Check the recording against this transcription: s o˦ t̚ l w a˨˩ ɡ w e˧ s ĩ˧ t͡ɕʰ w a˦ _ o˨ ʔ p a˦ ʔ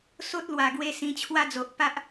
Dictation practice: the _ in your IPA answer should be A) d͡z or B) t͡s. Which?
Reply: A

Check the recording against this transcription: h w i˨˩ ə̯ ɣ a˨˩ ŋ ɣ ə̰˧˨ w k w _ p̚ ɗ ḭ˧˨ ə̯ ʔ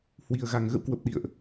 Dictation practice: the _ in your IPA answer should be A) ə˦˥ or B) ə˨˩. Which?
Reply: B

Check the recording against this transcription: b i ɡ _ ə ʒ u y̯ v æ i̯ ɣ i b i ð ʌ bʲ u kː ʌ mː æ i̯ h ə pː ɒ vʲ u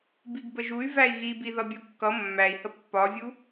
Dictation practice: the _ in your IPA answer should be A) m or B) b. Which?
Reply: B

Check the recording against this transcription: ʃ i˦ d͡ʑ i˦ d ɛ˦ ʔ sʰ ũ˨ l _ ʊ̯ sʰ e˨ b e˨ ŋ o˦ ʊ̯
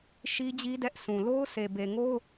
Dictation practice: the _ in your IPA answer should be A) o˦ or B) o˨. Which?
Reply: A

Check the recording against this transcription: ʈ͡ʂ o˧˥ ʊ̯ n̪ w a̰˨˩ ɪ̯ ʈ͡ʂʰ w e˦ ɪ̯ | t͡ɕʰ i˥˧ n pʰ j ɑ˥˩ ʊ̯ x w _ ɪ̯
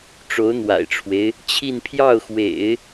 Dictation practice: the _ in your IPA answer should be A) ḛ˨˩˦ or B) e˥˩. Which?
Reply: A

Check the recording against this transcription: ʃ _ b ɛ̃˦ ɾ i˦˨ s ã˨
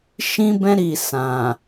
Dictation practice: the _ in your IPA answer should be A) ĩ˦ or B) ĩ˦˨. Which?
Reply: A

